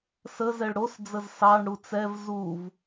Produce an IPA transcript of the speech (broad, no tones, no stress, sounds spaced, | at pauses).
s ə z ɛ ɭ ɽ o s d͡z ə z s ɑ ɳ ɽ u t͡s ɛ v z u v